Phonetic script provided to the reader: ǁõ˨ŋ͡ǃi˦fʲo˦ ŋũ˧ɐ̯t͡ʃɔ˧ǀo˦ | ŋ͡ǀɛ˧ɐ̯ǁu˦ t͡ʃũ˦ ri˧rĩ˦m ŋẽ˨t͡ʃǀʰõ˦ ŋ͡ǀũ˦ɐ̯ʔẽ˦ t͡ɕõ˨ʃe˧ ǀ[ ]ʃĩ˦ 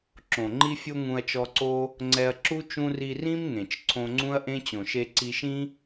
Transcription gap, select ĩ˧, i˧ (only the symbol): i˧